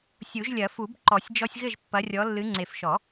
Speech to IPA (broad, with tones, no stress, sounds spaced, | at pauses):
sʲ u˨˩˦ ʒ lʲ ɐ˨˩˦ f u˨˩˦ b ǃ ɔ˨˩˦ sʲ d͡ʒ ɔ˦ sʲ ɣ ɘ˥˨ ʒ pː ɐ˨˦ rʲ ɔ˨˦ lː ɨ˨˦ ŋ͡ǀ e˨ f ʃ ɔ˨˩˦